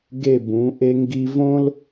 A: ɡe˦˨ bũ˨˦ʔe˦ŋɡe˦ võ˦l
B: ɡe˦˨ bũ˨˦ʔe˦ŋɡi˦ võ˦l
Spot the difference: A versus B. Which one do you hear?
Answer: B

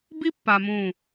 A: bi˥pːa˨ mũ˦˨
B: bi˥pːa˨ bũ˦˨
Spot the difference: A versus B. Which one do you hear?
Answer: A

